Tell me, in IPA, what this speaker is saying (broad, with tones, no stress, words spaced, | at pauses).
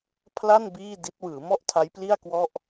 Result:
pʰla˥˩n biː˥˩di˦˥t̚ wɯː˩˦mɔ˥˩ʔ tʰa˦˥jpli˥˩a̯ kwɔ˥˩ʔ